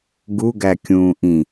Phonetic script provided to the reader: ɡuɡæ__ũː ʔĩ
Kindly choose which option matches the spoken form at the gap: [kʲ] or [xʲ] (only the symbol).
kʲ